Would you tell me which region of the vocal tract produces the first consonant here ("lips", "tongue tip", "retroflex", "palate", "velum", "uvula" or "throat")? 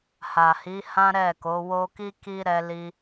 throat